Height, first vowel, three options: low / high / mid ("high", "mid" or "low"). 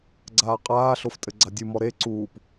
low